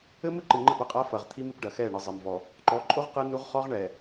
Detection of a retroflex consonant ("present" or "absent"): present